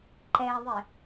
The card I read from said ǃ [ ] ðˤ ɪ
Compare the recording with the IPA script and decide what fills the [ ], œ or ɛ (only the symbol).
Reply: ɛ